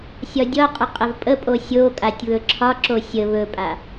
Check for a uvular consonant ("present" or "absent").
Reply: present